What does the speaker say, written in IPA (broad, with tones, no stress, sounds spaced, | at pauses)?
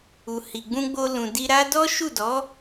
u˨ h i˨ ɡ͡b ũ˧ ɡ͡b o˧ l ũ˨ d i˧ ɾ a˦ d ɔ˦ ʃ u˦˨ d ɔ˨˦